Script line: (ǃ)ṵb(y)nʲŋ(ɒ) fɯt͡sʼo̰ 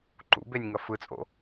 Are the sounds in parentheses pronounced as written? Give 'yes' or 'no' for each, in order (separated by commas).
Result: yes, no, no